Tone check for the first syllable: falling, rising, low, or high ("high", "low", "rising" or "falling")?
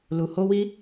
low